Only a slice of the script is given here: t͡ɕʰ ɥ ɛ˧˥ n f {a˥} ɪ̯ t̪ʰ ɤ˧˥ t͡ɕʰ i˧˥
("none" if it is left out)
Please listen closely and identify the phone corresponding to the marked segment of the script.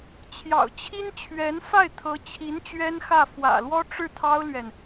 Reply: a˥˩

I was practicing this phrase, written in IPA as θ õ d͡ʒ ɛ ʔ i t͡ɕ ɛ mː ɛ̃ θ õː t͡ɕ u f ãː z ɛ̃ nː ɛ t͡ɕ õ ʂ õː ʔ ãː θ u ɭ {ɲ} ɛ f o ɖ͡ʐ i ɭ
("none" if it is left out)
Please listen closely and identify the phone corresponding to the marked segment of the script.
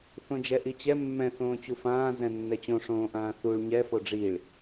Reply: ɲ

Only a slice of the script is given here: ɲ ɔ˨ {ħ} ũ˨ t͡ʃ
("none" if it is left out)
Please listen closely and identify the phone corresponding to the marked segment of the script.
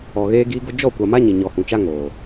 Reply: h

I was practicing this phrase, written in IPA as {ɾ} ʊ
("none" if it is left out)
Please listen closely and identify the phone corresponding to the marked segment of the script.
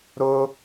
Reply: ɾ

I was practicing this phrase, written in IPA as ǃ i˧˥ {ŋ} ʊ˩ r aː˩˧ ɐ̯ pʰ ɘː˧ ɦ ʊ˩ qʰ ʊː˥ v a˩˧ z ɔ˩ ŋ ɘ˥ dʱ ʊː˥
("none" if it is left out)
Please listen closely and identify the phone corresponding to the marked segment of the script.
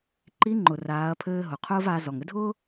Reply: ŋ͡ǃ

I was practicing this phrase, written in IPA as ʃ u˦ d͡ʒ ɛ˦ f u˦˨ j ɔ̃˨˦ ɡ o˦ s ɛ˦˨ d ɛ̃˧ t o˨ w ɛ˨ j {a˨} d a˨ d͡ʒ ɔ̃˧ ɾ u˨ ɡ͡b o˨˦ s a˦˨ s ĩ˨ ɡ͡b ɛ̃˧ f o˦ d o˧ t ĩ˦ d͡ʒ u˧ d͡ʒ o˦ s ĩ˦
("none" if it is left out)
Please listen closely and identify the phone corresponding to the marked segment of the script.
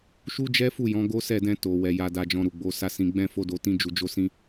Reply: a˨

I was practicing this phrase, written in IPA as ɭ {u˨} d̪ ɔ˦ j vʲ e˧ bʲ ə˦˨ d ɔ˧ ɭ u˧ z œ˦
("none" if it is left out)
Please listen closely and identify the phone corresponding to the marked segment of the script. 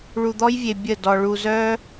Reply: u˧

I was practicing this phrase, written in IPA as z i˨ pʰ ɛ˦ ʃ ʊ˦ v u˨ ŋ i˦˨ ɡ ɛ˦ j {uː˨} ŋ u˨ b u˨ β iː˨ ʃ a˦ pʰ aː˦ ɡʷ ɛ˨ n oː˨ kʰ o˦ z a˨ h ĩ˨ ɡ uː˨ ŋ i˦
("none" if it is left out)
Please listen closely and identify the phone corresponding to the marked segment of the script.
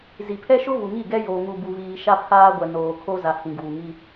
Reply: oː˨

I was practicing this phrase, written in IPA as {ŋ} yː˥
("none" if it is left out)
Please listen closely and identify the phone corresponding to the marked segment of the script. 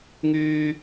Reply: ŋ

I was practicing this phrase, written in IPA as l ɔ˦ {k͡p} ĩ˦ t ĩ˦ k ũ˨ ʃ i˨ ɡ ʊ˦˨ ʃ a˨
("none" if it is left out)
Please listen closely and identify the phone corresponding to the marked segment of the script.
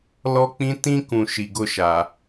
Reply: k͡p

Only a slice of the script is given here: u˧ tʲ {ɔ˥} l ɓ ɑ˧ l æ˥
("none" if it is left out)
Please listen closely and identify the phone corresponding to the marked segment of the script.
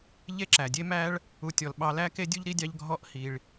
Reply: ɔ˩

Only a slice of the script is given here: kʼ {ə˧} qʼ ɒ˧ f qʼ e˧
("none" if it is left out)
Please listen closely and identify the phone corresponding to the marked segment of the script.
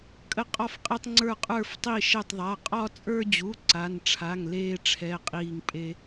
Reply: ə˧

